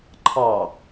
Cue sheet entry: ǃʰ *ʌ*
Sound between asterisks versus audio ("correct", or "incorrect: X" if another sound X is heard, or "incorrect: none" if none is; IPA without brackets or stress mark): incorrect: ɑ